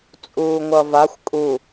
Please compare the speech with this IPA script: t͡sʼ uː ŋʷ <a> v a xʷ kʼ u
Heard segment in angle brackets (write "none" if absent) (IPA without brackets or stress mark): ʌ